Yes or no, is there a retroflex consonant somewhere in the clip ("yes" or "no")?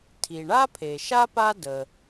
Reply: yes